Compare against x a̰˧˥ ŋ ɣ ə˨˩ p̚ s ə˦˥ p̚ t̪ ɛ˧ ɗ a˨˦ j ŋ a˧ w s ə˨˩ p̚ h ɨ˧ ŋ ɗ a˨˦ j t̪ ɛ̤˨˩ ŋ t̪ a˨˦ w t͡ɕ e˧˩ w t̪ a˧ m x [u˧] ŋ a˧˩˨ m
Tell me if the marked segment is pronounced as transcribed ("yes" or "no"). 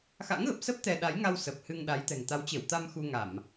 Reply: yes